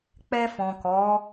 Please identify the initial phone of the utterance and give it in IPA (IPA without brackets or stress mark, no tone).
k͡p